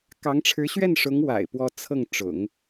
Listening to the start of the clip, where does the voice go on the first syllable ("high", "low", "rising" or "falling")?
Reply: rising